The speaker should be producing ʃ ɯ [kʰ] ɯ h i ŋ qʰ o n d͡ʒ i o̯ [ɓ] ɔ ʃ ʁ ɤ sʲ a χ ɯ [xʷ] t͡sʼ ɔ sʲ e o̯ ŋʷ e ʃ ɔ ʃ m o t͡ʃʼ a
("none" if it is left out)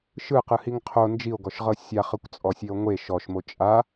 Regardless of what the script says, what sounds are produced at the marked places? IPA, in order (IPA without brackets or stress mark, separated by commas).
q, ɡ, kʷ